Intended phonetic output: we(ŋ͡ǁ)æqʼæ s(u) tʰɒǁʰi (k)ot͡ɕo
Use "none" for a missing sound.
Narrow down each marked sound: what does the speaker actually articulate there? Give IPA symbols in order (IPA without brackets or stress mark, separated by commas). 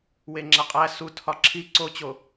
ŋ͡ǁ, u, ǀ